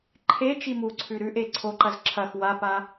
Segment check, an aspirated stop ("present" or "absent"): present